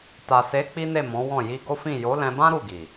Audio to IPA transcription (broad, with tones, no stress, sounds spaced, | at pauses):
t a˨ s e˨˦ k͡p i˦ n e˦˨ m ɔ̃˨˦ w ɔ̃˦˨ j i˧ ɡ o˦ f ĩ˦˨ j o˨˦ l ɛ̃˧ b ã˦ ɾ u˦˨ ɡ i˨